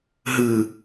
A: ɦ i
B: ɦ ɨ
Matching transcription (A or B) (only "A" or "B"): B